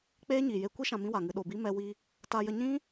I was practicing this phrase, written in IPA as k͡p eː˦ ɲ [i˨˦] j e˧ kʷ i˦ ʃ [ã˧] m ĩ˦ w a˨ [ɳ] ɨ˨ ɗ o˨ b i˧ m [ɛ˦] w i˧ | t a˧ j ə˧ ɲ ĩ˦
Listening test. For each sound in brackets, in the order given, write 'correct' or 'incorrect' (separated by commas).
incorrect, correct, incorrect, incorrect